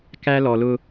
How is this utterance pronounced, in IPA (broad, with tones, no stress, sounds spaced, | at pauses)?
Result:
k æ˦ l ɔ˨ l ʊ˦